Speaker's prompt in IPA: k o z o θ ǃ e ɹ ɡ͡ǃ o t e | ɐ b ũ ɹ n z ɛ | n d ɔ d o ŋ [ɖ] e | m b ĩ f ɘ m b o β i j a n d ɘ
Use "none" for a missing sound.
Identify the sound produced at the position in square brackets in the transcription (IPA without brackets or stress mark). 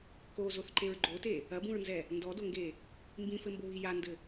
ɡ